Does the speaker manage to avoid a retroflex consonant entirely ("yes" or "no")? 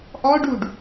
no